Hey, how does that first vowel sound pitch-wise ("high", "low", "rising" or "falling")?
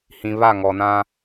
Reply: low